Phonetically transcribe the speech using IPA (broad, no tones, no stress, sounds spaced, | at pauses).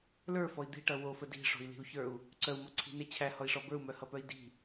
l ə˞ f ɔ i̯ d̪ i̤ ʈ ʌ w o f ə d i̤ ʂ o̤ i̯ l i̤ u̯ ç ə˞ u̯ | ǀ œ u̯ m ɔ ǀʰ i̤ n e t͡ɕʰ æ h ɔ i̯ ʂ ɔ b ə˞ u̯ m œ h ʌ p œ i̯ d i̤